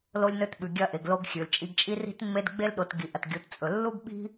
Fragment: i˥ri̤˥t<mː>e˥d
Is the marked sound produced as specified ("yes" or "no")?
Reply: yes